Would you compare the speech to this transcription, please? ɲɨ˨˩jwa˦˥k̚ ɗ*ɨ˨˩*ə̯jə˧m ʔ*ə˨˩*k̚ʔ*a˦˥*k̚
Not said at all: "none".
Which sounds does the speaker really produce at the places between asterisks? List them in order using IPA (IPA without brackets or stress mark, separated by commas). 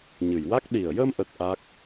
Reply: i˨˩, ə˦˥, a˦˥